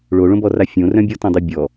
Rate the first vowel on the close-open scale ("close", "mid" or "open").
mid